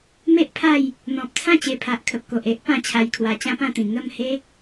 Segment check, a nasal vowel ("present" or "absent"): present